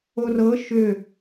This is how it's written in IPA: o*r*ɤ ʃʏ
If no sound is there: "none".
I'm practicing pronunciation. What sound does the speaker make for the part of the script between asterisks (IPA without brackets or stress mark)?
r